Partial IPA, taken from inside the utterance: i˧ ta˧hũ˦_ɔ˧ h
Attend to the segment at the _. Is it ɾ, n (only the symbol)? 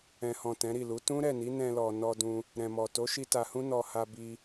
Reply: n